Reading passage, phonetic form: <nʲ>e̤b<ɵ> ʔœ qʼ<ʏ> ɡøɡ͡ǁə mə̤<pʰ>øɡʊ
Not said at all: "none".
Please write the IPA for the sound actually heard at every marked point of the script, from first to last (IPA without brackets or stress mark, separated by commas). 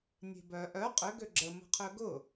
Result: nʲ, œ, ʏ, qʰ